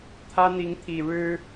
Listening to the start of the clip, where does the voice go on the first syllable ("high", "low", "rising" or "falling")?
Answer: high